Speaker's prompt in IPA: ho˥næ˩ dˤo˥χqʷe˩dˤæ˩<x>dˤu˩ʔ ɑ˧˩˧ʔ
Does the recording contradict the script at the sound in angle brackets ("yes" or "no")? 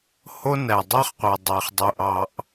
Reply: yes